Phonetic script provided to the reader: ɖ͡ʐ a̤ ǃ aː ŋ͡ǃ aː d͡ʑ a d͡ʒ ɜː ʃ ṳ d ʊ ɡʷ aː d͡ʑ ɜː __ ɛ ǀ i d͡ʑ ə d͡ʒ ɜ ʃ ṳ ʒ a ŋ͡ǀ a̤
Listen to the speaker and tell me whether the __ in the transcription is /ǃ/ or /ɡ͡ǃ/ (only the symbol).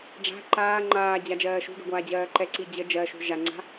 ǃ